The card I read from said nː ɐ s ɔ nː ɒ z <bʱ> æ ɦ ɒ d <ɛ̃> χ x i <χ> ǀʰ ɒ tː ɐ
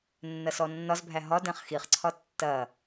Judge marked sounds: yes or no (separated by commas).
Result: yes, yes, yes